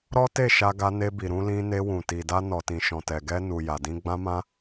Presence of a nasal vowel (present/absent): present